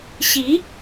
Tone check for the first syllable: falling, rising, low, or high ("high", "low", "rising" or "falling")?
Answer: rising